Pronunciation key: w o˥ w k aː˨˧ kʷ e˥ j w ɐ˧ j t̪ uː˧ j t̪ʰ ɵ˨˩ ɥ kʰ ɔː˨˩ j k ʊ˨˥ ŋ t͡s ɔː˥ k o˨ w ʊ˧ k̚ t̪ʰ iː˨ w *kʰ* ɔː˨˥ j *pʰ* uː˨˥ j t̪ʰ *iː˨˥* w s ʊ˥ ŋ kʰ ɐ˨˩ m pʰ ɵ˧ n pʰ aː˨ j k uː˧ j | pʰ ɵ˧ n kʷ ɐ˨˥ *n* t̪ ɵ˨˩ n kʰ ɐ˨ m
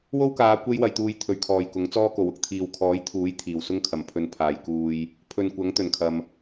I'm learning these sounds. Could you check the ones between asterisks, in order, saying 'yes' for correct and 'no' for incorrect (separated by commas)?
yes, no, no, no